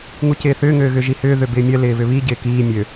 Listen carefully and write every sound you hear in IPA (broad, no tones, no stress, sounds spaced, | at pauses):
ŋ u c ɪː θ ʏː ŋ øː ɣ ʏ ʒ i h ʏː ð ø b ɪː mʲ œ l ɪː β ʏ β i ɟ ɪː k iː mʲ ø